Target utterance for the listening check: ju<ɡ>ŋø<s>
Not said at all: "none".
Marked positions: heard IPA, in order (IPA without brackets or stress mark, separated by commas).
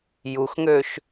x, ʃ